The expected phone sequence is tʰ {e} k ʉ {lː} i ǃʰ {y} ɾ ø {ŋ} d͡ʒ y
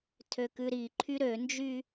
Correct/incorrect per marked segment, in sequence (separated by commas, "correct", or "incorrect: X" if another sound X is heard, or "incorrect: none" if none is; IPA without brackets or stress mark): incorrect: ø, incorrect: ɾ, correct, incorrect: n